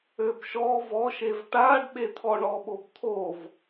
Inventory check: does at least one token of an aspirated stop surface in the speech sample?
yes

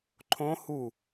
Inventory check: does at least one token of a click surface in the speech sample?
yes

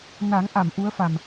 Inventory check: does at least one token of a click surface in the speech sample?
no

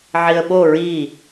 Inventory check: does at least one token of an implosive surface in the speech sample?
yes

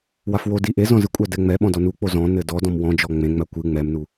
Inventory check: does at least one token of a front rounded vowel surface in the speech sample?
no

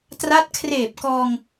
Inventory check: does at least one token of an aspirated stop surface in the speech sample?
yes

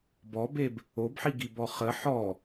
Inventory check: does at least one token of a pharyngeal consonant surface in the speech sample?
yes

